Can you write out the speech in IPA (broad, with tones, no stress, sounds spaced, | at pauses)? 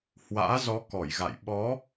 h w a̰ː˧˥ z ɔ˨˦ k ɔ˧˩ j ɣ a̰˧˨ j ɓ ɔ˨˦